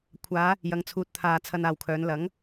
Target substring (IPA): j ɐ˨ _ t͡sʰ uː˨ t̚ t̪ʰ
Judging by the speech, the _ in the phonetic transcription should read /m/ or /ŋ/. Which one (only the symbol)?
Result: ŋ